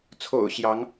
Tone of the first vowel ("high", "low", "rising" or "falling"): low